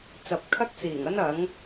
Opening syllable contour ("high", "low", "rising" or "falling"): low